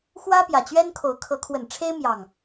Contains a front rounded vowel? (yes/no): no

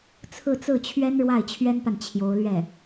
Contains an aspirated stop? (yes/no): yes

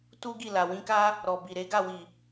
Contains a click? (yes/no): no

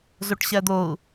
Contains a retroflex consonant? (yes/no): yes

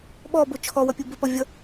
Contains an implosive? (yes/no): yes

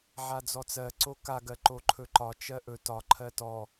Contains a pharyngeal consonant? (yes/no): yes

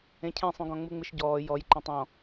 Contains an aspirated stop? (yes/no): yes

